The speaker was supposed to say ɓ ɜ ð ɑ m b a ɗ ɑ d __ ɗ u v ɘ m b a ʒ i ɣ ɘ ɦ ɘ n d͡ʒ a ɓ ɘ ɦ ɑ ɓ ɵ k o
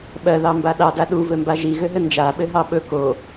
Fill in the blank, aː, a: a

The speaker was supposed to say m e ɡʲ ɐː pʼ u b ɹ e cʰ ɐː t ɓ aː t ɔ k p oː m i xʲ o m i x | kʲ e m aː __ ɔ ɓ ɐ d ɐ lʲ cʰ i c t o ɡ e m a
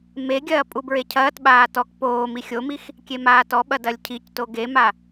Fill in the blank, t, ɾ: t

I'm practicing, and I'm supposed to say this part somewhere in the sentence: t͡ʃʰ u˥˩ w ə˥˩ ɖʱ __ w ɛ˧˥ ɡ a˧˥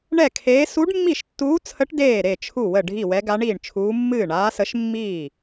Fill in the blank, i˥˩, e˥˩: i˥˩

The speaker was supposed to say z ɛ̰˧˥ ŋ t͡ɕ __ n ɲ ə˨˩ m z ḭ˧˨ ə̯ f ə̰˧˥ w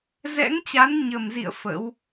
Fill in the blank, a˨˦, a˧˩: a˨˦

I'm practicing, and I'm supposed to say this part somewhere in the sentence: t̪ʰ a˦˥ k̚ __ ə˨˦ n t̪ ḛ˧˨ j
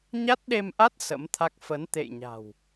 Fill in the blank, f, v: f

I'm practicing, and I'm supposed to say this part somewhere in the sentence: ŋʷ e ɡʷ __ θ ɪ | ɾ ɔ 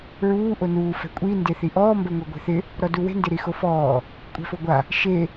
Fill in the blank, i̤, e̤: e̤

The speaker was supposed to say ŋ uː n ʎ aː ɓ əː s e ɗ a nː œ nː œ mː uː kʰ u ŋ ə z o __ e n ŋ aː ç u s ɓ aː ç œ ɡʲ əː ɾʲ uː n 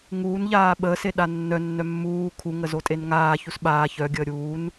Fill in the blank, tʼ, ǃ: tʼ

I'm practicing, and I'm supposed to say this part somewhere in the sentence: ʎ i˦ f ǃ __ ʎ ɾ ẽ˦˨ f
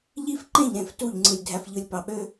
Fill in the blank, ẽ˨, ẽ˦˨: ẽ˦˨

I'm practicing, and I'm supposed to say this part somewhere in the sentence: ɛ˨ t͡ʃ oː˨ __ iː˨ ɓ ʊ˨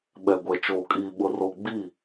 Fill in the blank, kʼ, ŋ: kʼ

